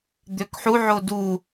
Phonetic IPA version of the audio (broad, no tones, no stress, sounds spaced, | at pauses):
d̪ ø k ħ u ʕ o d u